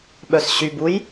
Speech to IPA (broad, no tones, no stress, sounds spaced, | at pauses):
ɓ œ s ɕ y b u j